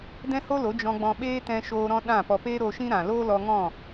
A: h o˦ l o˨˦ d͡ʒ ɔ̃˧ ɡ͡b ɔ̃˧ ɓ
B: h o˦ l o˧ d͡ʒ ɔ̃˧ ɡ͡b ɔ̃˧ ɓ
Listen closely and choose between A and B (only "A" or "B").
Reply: A